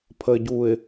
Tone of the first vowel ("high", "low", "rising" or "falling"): low